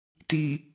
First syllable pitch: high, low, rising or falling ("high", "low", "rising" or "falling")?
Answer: low